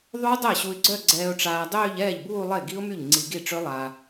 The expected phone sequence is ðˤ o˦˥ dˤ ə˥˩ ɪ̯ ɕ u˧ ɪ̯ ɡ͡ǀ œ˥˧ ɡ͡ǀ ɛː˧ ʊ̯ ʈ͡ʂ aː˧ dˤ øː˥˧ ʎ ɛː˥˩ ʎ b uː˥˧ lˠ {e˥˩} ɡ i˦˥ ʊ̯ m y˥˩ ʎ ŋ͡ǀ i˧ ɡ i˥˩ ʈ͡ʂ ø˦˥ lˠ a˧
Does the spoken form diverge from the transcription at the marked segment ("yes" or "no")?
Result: no